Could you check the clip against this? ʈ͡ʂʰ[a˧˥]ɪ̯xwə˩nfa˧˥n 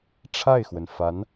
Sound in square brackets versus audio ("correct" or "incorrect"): incorrect